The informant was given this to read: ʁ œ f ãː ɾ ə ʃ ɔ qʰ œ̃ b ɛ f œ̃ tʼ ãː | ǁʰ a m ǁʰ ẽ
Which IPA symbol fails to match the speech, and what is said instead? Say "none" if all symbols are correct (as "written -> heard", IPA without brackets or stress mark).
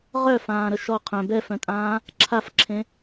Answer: m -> f